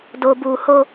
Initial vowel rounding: rounded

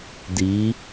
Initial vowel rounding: unrounded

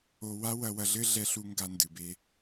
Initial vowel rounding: rounded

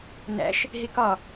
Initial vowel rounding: unrounded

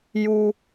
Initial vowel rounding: rounded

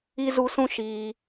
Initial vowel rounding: unrounded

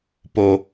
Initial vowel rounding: rounded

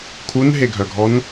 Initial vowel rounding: rounded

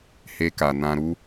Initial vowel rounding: unrounded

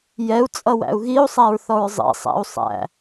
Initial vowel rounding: unrounded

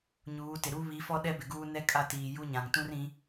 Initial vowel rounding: rounded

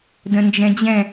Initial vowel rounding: unrounded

